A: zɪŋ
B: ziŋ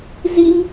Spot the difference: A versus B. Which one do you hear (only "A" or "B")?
B